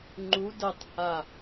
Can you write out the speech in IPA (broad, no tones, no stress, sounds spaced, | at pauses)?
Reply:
ŋ͡ǃ u d ə tˤ h a